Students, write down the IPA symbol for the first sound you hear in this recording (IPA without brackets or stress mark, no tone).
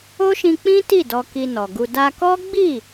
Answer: o